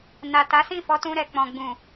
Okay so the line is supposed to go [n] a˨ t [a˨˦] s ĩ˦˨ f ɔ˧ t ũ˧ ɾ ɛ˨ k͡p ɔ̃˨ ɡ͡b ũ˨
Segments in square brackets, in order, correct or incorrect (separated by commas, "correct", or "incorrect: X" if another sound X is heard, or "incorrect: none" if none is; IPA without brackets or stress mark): correct, correct